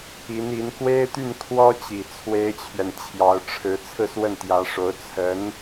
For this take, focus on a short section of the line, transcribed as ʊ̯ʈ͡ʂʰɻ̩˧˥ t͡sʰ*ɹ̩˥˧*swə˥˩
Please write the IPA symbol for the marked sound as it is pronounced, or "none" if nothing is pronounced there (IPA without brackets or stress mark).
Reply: ɹ̩˥˧